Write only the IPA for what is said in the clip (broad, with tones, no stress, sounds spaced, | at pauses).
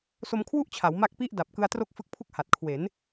s o˧ m kʰ w u˥˩ ʔ t͡ɕʰ a˩˦ w m a˦˥ k̚ p i˥˩ ʔ d a˨˩ p̚ k ɯ˧ a̯ t r o˥˩ k̚ f ɯ˦˥ k̚ pʰ u˥˩ k̚ h a˨˩ t̚ kʰ w e˩˦ n